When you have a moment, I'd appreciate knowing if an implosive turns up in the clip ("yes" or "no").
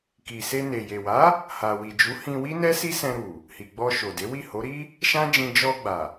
no